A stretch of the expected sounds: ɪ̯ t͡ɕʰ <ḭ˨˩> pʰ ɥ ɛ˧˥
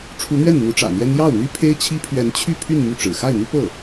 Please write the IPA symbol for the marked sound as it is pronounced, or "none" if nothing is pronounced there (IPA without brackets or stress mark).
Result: i˥